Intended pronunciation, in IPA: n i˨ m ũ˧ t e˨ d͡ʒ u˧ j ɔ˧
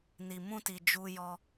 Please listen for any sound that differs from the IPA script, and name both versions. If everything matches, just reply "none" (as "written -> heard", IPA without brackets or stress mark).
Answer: e˨ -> i˨